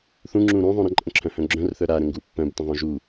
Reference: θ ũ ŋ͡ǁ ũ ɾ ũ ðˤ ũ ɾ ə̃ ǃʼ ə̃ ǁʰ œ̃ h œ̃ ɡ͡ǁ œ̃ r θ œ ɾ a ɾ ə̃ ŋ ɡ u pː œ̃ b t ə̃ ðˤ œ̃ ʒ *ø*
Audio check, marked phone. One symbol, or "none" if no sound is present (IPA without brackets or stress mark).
u